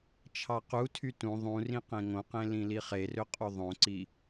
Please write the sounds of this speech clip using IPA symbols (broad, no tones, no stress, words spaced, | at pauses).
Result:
t͡ʃʰɑqutʰy tũ ðˤũrĩ qẽŋõqẽ lĩliχerø qʼuðˤõǀi